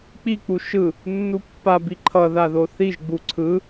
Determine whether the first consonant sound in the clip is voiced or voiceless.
voiceless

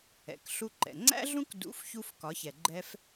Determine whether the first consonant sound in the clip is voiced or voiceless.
voiceless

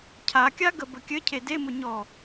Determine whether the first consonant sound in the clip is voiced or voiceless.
voiceless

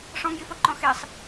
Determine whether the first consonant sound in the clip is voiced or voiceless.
voiceless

